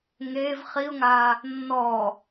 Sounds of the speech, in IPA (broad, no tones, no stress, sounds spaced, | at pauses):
ŋ eː v χ i ʊ̯ ŋ aː | nː ɔː